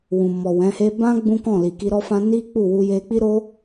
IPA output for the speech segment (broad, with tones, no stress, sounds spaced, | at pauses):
w ũ˨ m ɔ˨ w ɛ̃˨˦ h e˦ b ã˦ ɡ͡b ũ˦ k ɔ̃˦˨ l i˨ k i˧ ɾ ɔ˦ f ã˦ n i˦ k͡p u˦˨ w u˧ j e˦ k͡p i˦ ɾ o˦